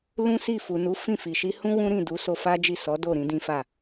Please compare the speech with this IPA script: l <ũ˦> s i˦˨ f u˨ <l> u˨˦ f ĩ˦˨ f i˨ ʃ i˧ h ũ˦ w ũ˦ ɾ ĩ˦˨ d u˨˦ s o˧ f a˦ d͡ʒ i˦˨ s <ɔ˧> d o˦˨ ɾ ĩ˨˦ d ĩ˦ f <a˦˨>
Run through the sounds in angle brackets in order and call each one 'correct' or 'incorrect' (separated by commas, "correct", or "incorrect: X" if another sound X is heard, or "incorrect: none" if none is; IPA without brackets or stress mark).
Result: correct, incorrect: n, incorrect: ɔ˨˦, correct